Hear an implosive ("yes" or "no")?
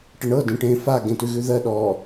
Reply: yes